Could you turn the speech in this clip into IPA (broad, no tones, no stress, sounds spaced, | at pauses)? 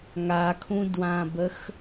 ŋ a kʰ ũ d w ã b ə x